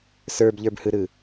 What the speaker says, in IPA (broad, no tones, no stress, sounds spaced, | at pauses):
s ə˞ b ʎ ə˞ b h ɯ ɾ ɯ